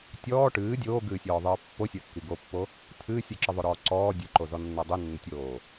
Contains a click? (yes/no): yes